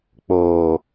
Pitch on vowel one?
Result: low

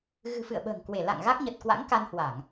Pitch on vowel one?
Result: low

